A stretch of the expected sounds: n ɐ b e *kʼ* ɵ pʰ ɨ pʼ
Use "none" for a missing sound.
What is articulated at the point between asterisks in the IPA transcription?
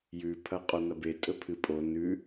tʼ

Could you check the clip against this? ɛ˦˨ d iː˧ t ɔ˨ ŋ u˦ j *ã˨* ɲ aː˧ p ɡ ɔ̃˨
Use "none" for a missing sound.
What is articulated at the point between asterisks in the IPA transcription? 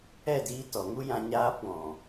ã˧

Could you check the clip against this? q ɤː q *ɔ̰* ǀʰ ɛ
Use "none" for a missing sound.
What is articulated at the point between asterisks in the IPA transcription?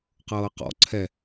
ɔ̰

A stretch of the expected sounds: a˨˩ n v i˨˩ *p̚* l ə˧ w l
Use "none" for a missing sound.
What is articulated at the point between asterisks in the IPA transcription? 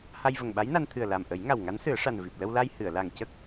p̚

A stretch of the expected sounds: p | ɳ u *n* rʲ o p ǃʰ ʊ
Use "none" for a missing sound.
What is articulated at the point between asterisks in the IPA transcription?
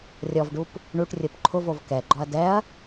ʈ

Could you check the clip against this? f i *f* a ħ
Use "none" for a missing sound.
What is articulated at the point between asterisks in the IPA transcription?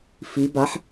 b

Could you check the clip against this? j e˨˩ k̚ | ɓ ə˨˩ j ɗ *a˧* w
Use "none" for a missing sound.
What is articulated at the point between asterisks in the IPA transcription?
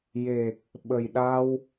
a˧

